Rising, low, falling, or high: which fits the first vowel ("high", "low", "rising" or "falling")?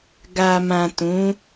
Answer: low